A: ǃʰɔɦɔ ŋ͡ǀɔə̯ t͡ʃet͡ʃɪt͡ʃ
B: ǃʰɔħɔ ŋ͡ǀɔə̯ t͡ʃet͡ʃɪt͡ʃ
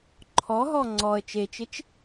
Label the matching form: A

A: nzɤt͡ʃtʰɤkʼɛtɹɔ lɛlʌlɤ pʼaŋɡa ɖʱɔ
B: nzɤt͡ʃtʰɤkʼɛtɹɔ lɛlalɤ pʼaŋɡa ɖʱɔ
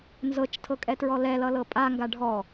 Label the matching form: A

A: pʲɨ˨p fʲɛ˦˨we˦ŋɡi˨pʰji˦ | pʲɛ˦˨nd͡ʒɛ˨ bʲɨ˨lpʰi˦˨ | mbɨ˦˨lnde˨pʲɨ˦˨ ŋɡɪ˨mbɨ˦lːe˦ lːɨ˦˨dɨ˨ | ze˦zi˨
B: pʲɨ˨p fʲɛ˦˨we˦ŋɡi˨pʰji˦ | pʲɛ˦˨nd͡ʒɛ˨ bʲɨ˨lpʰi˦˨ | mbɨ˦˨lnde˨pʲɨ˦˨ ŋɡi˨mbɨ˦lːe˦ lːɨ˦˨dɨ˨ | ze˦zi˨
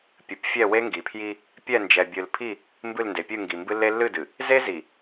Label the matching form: B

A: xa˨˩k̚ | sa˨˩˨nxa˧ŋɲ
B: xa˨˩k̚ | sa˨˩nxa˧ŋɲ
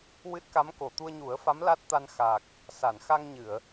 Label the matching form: A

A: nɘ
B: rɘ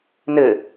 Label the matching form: A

